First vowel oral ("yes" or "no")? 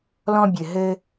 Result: no